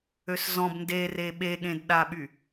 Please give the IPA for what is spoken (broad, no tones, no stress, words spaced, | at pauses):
øszɔ̃b ndere ɓeɠẽdɗaɓy